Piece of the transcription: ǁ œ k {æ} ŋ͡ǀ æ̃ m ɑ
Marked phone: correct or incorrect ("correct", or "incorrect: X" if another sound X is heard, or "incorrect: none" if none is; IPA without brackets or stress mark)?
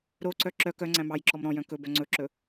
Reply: incorrect: œ